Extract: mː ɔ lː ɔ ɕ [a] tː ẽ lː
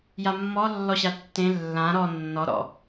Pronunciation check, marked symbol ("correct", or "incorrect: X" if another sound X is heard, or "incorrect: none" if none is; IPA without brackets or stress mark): correct